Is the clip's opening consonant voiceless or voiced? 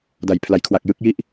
voiced